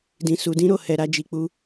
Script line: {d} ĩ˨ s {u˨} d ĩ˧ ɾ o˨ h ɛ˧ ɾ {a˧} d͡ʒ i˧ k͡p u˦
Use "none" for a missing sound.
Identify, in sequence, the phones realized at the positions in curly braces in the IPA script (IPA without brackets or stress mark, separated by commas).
d, u˨, a˧